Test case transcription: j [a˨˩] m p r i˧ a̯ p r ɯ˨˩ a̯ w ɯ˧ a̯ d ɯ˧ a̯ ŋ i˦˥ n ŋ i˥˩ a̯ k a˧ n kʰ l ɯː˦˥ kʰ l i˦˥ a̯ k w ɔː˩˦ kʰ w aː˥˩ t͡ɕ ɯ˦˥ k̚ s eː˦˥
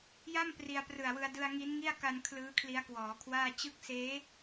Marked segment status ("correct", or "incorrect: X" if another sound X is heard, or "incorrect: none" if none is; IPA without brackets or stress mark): incorrect: a˥˩